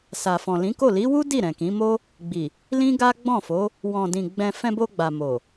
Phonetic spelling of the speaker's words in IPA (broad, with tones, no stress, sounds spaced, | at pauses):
s a˨ f ɔ̃˨ l ĩ˨˦ k o˦˨ l i˨˦ w u˦ d i˦˨ ɾ ɛ̃˨ k ĩ˨˦ m o˦ | ɡ͡b i˨ | l ĩ˦ ɡ a˦ ɡ͡b ɔ̃˦˨ f o˨˦ | w ɔ̃˨ d ĩ˨ ɡ͡b ɛ̃˧ f ɛ̃˧ b o˧ ɡ͡b a˨ m o˨